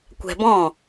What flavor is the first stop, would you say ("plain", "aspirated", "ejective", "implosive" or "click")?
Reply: plain